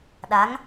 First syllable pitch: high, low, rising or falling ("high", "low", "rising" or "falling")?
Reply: rising